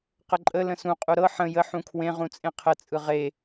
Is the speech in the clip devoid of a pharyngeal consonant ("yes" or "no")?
no